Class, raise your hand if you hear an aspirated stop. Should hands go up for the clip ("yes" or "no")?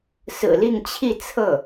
yes